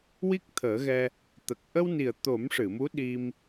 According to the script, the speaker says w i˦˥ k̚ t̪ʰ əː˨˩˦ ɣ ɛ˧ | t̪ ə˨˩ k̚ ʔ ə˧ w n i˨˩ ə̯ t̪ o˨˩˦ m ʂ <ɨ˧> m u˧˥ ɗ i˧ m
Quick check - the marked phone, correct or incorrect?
incorrect